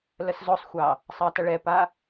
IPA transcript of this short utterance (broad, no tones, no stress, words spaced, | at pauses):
ləszosˤxʷɑ | sˤɑtɐɭɛpa